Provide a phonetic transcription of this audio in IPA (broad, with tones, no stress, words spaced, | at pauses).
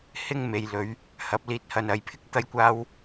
hɪ˥ŋ me˨jlɵ˨˧ɥ | hɐ˨˥p̚liː˧t̚hɐ˧nɐ˨˧j pʰɪ˥k̚t̪ɐ˥jkʷaː˥w